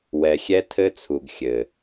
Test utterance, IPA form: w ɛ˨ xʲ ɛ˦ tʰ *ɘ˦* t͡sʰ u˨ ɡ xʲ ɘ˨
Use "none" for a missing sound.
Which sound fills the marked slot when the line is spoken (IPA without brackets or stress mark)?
ɘ˦